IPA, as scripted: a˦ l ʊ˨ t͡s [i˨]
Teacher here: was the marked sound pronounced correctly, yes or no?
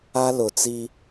no